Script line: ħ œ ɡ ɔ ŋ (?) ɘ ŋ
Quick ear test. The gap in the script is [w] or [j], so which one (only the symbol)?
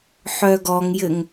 j